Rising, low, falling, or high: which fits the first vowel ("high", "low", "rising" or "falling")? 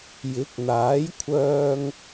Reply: rising